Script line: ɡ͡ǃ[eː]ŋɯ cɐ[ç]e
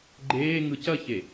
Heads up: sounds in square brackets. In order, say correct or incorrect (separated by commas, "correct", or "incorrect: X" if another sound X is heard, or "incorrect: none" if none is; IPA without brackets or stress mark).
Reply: correct, correct